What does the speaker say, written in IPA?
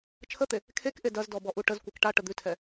t͡ʃʰ ə t̪ e | kʰ e k ʔ e d ɐ z d ɔ b ɔ ʔ u ʈ ə z kʷ e k ʈ a ʈ ə d̪ ʉ tʰ ɛ

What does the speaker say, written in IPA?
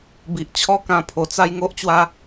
b i˨ ʔ t͡ɕʰ ɔ˦ k ã˧ pʰ o˨˩ t͡s a˦ j ŋ o˦ ʔ t͡ɕ w a˦

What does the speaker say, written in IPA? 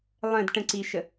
lˠ ə̃ d ʈ ə̃ ǀ i ʃ ə

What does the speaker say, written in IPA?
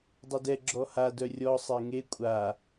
dˤ œ d ɛ ɡ͡ǁ ɔ h a d œ rʲ ɔ sˤ e ŋ e kʷʼ a

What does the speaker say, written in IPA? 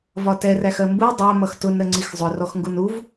v ɒ t ɛ r æ x ɜ m b u dˤ æ m ʌ x t ʊ n ɾ ə ŋ͡ǀ i x zˤ ʊ r ɔ x ŋ ɡ u n u v

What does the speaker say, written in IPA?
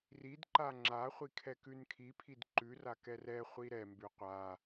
r i d ǃ a ŋ͡ǁ a χʷ i kʰ ɛ k ʉ n kʰ i pʰ i d ǃ ʉ r a k ɛ r ɛ χʷ i ɾ ɛ m b ʉ qʷ a

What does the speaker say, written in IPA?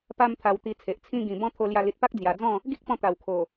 p a˧ m t̪ʰ a˧ w t̪ i˧ t͡sʰ e˨ ʔ t͡sʰ ĩ˧ ɡ ĩ˨˩ b ɔ̃˦ t̪ʰ o˧ l j a˧ l i˨ t̚ p a˦ k̚ d͡z j a˨˩ d͡z ɔ̃˥˧ | ɡ i˦ k̚ p ɔ̃˧ t̪ a˨˩ w kʰ o˨˩

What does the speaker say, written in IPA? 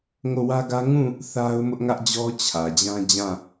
ŋ o˦˨ w ä˦ ɡ ä˦ ŋ ũ˦˨ | θ a˦ ʊ̯ m ʊ˦ ʔ ŋ ä˦ ʔ d͡ʑ ɔ˦ t͡ɕʰ ä˨ d͡ʑ ã˦ d͡ʑ ã˦˨

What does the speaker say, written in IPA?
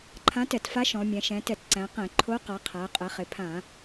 ǃʰ ã˧˥ t ɛ˧˩˧ t f a˧˥ ʃ ɔ̃˩˧ mʲ ɛ̃˩˧ ʃ ɛ̃˩˧ t ɛ˧˩˧ t ǀ æ̃˩˧ q ɛ̃˧˩˧ ǃʰ o˧˥ q a˩˧ qʰ æ˩˧ qʼ ɛ˩˧ χ ɪ˩˧ pʰ ã˧˩˧

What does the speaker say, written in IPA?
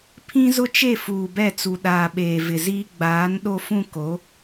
pʰ ĩ˦ z ʊ˦ t͡ʃ e˦˨ f uː˨ b ɛ˦˨ t͡s u˨ ɗ aː˨ ɓ eː˨ v ɪ˨ z iː˦ ɡ͡b aː˨˦ n ɗ o˦ f ũ˦ k o˨˦

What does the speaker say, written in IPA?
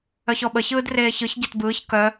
œ ç ɔ ɓ ə ç ɯː d r eː ç ɯ ç ɟ ɛ t b ɯː ç k œ

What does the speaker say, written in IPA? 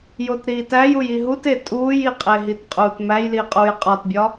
j o t ɾ iː t æ j u j i ɦ u t e tʼ uː j i qʼ e ɦ i t qʼ uː t m æ j l i qʼ uː j qʼ ɒ t bʲ ɒ

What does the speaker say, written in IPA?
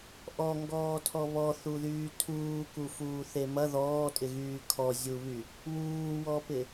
ʔ ɔ ŋ ɡ ɔː tʰ ɔ β ɔ θ u ð yː tʰ uː k u f uː θ e m ɐ ð ɔː tʼ ɪ ɣ yː kʰ ɔ zʲ u β y | w uː w ɔ p ɪ

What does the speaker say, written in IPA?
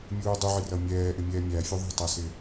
mʲ uː dˤ u ʕ ɪ r ʌ mʲ ɛː ʔ ɪ mʲ ɛː mʲ æ fʲ u ðˤ i̤ tˤ æ s ɪː

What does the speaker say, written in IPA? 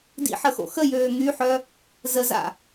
d ḭ ħ ə x o̰ x ə j øː ŋ y ħ œ | z ə z a̰

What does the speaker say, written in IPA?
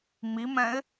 ŋ͡m i m ɛ̃ ɪ̯

